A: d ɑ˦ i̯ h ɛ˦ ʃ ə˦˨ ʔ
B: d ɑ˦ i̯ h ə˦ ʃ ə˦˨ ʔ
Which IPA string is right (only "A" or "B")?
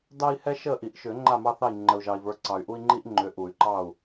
A